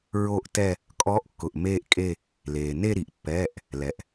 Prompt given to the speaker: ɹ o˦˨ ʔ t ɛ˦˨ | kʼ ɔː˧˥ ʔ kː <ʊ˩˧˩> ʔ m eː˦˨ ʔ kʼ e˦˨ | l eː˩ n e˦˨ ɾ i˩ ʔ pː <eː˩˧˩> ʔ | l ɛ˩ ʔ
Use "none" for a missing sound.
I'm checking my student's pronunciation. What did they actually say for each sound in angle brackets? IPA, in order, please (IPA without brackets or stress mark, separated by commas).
ʊ˩˧˩, ɛː˩˧˩